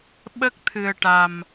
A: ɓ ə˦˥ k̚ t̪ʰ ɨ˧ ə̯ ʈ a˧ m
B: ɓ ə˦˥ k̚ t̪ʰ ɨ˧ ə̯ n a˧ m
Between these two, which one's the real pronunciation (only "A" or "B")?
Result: A